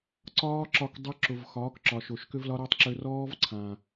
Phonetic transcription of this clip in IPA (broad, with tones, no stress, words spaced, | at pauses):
ǀɒː˦ǁɒ˧k dˤʊ˧ ǁʊ˨vxɒː˨˦kǁɒ˨ ʃo˨ʃkʏ˦vlɒ˦ɾɔ˦tˤ ǁø˧rɔː˦vǀʰã˨